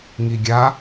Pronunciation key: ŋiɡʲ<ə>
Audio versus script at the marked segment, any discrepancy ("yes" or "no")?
yes